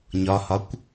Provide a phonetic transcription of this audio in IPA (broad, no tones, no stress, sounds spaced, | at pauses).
ɲ ɒ h ɒ kʷ